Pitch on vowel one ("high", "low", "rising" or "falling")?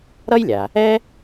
high